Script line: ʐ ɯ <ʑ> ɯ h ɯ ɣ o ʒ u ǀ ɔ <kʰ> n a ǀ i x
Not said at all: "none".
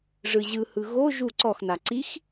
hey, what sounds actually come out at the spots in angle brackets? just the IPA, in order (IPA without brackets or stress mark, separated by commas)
ʑ, x